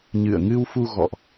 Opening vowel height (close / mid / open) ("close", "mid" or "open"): close